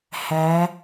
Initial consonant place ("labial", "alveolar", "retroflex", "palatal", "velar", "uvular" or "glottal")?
glottal